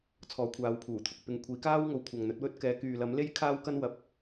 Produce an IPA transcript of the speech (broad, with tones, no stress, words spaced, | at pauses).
t͡sʰɔː˨˥kʷʰaː˨˧wpʰuː˨˩t̪ʰʊ˨k̚ pɪ˨˧ŋ kʷʰiː˨˧kaː˥w ŋo˨wkʷʰɐ˨ŋn̪ɵ˨˥t̚wɵ˥t̚ kɛː˨˥kyː˨ lɐ˨˥mle˥j kʰaː˥wkɐ˥nwɐ˨˥p̚